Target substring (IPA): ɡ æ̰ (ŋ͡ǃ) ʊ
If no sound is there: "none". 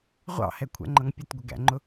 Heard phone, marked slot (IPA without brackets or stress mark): ŋ͡ǃ